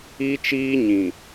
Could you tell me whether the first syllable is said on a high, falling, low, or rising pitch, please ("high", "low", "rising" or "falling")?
high